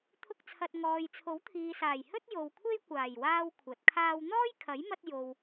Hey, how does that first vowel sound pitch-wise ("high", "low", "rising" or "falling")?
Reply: high